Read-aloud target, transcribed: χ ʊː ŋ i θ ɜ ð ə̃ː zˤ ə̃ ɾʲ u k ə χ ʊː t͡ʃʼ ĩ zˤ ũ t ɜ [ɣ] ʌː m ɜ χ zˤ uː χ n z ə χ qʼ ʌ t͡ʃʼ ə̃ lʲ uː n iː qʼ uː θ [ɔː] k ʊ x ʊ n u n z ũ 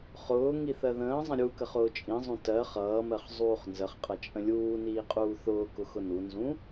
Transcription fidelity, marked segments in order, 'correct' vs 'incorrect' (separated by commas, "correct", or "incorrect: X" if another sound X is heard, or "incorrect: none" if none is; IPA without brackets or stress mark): incorrect: χ, incorrect: ʊː